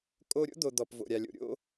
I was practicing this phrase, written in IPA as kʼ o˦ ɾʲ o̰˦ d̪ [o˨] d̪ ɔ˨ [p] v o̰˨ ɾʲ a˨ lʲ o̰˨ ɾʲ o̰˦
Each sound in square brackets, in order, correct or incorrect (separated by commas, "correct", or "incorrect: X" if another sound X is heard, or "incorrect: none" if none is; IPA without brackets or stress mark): correct, correct